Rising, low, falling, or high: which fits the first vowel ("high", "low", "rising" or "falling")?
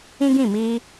high